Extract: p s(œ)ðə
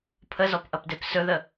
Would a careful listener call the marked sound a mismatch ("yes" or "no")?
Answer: yes